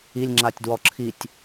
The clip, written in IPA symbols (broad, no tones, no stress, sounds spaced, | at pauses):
i lʲ ŋ͡ǁ a tʲ d w ɔ ǁʰ i tʲ